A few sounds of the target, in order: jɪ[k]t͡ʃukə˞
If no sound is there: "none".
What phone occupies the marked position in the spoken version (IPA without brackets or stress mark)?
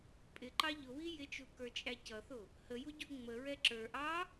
none